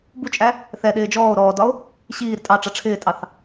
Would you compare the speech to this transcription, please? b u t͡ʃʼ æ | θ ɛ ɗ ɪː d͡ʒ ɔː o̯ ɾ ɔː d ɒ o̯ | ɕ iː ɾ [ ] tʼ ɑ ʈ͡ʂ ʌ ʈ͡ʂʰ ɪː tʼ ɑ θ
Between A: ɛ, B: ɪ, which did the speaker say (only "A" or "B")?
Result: B